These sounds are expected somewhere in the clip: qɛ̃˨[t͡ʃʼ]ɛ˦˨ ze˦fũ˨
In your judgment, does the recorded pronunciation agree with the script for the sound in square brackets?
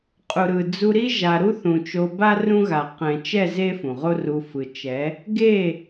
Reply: no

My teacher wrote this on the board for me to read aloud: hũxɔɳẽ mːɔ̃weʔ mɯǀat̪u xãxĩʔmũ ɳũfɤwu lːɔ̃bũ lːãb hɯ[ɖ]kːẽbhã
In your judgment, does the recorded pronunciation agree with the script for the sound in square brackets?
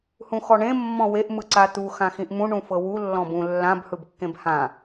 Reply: no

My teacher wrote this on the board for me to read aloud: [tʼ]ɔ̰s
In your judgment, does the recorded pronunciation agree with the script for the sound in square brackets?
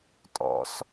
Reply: yes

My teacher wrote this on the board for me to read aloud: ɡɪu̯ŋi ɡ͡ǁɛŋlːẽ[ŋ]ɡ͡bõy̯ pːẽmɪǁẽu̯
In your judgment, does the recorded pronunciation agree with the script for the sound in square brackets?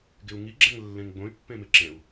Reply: yes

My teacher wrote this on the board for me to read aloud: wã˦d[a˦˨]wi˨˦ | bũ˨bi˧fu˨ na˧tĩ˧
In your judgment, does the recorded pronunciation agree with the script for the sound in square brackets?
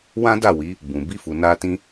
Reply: yes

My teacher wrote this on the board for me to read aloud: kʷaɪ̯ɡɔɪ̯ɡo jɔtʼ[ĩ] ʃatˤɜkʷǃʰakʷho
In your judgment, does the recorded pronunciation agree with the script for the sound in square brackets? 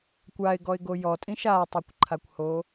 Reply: yes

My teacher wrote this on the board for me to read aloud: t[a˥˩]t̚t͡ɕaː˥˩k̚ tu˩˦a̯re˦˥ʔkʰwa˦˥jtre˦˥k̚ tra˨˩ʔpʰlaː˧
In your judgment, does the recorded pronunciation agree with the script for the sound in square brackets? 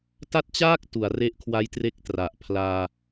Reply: yes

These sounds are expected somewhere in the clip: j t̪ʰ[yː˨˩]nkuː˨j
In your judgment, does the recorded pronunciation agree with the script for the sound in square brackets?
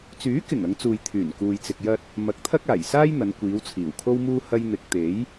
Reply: yes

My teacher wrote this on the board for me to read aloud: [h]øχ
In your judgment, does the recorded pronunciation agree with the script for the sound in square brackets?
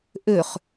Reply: no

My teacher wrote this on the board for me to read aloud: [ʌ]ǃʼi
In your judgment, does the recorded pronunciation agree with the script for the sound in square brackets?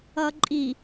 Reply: yes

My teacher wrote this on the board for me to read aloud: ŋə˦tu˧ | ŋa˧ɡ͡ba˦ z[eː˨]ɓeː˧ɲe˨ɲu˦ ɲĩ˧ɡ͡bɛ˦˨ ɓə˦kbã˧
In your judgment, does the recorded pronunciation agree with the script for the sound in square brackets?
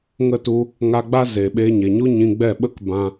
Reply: yes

